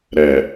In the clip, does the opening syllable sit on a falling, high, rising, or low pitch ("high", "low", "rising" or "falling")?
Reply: low